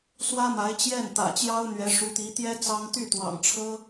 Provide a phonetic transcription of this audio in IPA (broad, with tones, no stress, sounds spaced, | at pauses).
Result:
s w ä˥ m a˧˥ ɪ̯ t͡ɕ j ɛ˥˩ n t̪ ä̰˨˩ t͡ɕ j ɑ˥ ʊ̯ n̪ ɥ ɛ˧˥ ʂ u˧˥ t̪ i˧˥ t̪ j ɛ˥ t͡s ɑ˥ ŋ t̪ y˥˩ t̪ w ɑ̰˨˩ ŋ ʈ͡ʂʰ ɤ˥